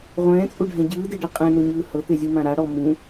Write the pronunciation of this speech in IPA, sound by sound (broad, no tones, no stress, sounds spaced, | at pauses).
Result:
ʁʷ ɛ̃ː t͡sʼ u ɖʱ ɛ̃ ɟ ɯː d e ɖ ɤ qʼ ɛ̃ n o ɲ ɯː h ɤ t̪ e zʲ u m ã ɾ a ɽ ɔ m ũ